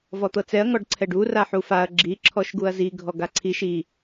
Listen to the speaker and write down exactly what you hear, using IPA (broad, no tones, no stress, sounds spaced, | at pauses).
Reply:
v ɔ t̪ ɤ t͡s ɛ ɐ̯ ŋ ɔ ɖ ǀʰ ɛ ɖ u r a ħ u f a ɐ̯ ɡ͡ǁ i ǁʰ ɔ ʃ ɡ u ɐ̯ z i ɡʱ ɔ ɡ a ǀʰ i ʃ i